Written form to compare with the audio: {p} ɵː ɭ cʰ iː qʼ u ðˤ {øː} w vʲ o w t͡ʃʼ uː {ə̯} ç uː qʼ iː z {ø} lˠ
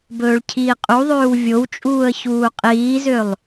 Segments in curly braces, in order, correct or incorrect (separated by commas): incorrect, correct, correct, correct